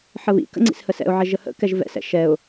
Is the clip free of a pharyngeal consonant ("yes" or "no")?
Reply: no